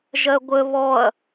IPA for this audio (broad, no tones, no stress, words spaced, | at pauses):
ʒɜɡʷə βɔɐ̯